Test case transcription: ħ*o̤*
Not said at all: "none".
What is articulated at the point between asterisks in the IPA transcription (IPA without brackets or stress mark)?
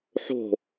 o̤